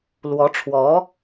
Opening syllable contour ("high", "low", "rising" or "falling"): rising